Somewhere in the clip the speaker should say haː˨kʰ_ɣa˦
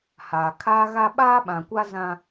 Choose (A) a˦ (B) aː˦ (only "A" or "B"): B